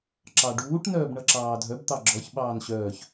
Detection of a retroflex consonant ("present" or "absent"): present